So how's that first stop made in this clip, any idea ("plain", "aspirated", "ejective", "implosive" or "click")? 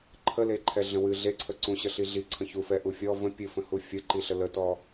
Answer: click